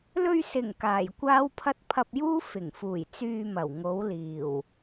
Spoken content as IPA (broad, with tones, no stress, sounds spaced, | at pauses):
l ɵ˧ ɥ s ɪ˨˩ ŋ k aː˨˩ j kʷ aː˥ w pʰ ɐ˥ t̚ pʰ ɐ˧ p̚ j uː˥ f ɪ˨˩ ŋ f uː˨˩ j t͡s yː˧ m ɐ˨˩ w ŋ o˨˥ w l iː˨˩ w